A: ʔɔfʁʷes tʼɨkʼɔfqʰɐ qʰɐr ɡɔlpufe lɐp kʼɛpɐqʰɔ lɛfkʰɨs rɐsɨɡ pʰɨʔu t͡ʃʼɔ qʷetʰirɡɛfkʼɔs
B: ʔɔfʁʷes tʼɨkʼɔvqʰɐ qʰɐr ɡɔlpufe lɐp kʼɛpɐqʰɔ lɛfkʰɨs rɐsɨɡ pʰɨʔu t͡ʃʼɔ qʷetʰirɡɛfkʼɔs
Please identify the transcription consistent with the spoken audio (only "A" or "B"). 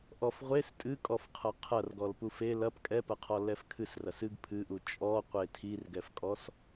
A